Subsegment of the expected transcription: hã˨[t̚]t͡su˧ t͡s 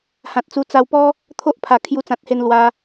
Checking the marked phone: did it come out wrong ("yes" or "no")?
no